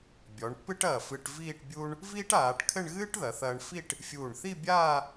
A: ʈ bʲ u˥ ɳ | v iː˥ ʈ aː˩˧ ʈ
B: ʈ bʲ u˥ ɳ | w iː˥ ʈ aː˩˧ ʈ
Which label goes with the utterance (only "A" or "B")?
A